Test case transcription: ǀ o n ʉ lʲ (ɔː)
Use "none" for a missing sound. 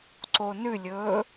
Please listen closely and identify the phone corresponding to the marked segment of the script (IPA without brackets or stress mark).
ɵː